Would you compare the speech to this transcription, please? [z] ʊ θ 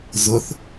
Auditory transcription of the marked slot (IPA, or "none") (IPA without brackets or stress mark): z